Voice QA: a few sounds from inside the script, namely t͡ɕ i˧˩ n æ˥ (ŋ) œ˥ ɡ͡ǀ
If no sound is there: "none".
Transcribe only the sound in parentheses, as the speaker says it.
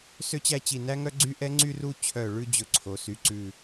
ŋ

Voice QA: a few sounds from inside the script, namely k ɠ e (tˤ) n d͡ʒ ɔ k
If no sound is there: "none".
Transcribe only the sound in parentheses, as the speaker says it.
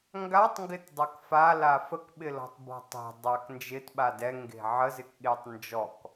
tˤ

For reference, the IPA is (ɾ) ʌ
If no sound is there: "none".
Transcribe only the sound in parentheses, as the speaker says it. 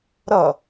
ɾ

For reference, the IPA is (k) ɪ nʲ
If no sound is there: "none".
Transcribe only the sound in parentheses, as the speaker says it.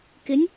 k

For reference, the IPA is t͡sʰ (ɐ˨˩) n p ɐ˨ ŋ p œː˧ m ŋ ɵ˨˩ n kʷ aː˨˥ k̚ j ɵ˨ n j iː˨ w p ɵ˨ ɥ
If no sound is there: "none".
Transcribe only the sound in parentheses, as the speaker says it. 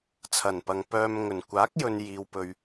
ɐ˨˩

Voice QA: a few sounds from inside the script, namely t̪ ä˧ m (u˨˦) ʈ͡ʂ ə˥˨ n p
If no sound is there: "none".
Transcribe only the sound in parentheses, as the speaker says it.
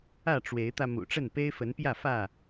ṵ˨˩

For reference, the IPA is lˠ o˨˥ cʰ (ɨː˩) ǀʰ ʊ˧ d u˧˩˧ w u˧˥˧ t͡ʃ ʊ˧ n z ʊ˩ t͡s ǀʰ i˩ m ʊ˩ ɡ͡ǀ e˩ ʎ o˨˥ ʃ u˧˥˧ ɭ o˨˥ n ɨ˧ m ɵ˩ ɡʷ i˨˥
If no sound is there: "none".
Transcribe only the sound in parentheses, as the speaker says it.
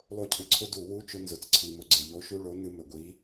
ɨ˩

